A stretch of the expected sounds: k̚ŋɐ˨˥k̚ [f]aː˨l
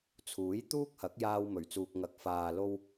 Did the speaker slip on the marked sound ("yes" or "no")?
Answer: no